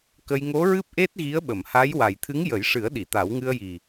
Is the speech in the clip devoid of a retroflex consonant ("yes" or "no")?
no